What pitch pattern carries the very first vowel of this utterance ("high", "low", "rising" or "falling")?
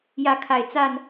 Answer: rising